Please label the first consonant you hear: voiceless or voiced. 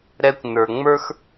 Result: voiced